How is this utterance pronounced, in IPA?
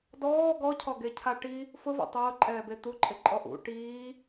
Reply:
d ɔː ɡ ɔ cʰ ɔ ɡ e cʰ a ʈ i | f ʊ v ṵ tˤ ʊː ǃʼ ɛː b e t̪ u ǃʼ ɪ ǃʼ ɔ ʔ ṵ ʈ iː

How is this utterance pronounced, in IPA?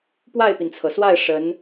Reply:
p w a˥˩ ɪ̯ p i˩ n t͡sʰ ɤ˩ s w a˥˩ ɪ̯ ʂ ə˧˥ n

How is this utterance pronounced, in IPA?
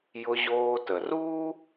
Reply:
j ʊ˧ ʑ oː˧ t ə˩ r uː˥

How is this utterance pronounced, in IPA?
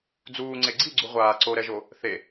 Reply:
d͡z uː ŋ͡ǀ e ɡ͡ǀ i ɡ͡ǀ u ʁʷ aː ǀ o ɾ ɛ ʒ o | θ e

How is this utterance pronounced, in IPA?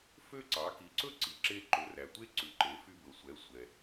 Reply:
f ø˥ ǀ ɑ˩˥ k i˩˥ ǀ ɵ˥ ǀ i˩ ǁ e˧ ǃ ɵ˩˥ r æ˩ tʷ e˥ ǀ ʉ˩˥ ǃ e˩˥ f y˧ b ɵ˩ sʷ ɛ˩˥ sʷ ɛ˩

